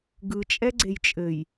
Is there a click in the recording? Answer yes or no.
yes